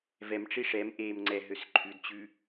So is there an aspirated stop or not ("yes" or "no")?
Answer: yes